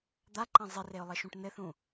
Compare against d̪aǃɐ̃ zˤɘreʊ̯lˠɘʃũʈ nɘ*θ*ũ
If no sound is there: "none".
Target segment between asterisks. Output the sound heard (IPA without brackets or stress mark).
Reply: θ